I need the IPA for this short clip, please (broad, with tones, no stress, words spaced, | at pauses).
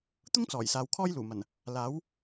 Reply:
t̪ʊ˥ŋt͡sɔː˨˩j saː˨wkʰɔː˥jluː˨˩mɐ˨˩n | laː˨˥w